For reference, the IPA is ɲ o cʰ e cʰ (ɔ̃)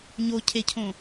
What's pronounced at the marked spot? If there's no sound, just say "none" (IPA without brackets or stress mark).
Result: õ